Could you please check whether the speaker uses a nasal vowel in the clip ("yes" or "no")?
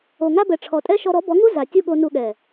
no